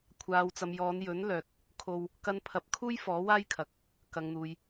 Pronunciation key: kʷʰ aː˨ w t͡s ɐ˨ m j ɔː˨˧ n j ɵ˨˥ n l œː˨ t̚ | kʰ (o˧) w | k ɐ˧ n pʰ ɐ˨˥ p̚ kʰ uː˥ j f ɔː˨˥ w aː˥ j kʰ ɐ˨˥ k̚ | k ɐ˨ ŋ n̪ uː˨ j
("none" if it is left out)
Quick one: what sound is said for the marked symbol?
o˧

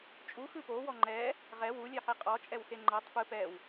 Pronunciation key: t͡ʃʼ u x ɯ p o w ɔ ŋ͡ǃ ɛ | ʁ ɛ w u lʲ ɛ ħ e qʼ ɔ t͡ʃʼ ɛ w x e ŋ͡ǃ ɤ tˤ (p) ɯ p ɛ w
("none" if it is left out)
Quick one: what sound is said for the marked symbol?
p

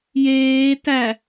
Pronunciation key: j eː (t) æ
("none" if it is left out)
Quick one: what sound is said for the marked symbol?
t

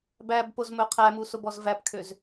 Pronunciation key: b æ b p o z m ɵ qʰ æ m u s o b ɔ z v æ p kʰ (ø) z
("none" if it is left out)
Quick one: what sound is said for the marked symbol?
ø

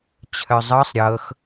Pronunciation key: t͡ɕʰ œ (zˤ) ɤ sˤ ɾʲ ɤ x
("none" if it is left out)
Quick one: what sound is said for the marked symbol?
zˤ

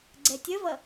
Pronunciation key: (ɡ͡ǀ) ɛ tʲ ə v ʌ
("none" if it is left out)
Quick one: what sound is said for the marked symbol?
ɡ͡ǀ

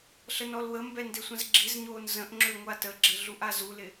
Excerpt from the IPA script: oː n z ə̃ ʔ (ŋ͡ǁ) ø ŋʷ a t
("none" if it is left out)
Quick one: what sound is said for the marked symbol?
ŋ͡ǁ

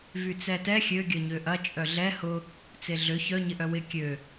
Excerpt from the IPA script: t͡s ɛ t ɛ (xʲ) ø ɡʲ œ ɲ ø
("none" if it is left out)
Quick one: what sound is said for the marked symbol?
xʲ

